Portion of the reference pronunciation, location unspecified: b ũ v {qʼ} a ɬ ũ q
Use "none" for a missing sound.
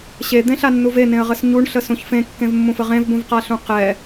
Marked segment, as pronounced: q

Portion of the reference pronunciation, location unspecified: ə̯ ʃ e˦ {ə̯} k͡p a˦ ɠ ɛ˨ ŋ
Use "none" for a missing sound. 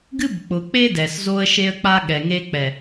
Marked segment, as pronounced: ə̯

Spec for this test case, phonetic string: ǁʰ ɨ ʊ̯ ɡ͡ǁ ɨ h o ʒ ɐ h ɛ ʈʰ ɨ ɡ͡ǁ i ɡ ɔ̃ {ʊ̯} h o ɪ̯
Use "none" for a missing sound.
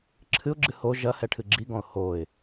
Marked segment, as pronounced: ʊ̯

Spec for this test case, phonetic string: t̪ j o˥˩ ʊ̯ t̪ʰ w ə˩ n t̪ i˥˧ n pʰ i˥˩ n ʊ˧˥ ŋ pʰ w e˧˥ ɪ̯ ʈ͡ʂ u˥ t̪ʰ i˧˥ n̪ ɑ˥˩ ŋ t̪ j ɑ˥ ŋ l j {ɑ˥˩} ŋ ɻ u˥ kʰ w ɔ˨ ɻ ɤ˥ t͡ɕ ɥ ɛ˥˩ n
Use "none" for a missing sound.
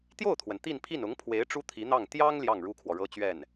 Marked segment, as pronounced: ɑ˥˩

